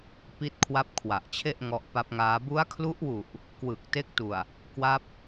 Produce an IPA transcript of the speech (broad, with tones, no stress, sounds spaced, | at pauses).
p i˦˥ t̚ kʰ w a˦˥ p̚ kʰ w a˨˩ ʔ t͡ɕʰ e˥˩ ʔ ŋ ɔ˦˥ ʔ p a˦˥ p̚ ŋ aː˦˥ b u˦˥ a̯ kʰ l u˦˥ ʔ w u˨˩ ʔ | k w ɯ˨˩ k̚ t e˦˥ k̚ t u˨˩ a̯ | k w a˦˥ p̚